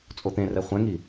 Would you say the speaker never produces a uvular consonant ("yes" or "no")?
no